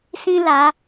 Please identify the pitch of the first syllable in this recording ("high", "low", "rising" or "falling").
high